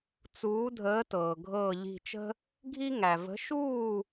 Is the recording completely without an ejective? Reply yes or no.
yes